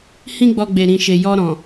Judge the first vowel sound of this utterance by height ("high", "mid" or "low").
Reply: high